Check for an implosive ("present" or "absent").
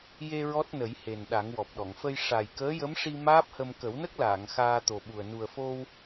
present